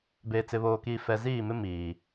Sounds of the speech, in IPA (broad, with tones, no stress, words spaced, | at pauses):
beː˨t͡sɪ˨βoː˨kiː˨ fɛ˨ziː˦˨mɪ˦ miː˨